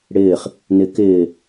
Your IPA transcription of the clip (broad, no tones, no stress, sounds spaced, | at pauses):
ɽ ɪː χ | n ɪ k ɪː